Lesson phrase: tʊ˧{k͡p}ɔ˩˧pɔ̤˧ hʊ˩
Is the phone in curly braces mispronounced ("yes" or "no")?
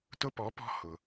yes